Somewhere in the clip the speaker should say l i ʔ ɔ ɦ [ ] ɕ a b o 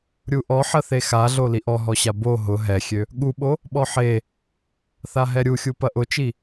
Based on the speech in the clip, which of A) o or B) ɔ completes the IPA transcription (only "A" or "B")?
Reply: B